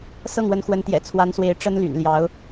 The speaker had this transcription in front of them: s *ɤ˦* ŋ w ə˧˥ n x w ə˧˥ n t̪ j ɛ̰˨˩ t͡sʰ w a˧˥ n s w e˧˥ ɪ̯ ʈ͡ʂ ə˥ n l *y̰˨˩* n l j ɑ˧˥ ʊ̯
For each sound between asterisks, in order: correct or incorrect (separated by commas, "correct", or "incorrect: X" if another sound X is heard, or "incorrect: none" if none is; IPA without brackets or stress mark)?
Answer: incorrect: ɤ˥˩, correct